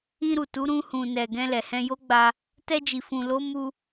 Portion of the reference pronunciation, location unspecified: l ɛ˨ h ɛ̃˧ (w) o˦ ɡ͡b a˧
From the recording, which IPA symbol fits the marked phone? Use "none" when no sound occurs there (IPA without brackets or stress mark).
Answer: j